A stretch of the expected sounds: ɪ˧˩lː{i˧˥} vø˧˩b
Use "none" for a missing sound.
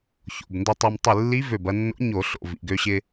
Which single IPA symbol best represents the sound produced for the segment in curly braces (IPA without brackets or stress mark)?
i˧˥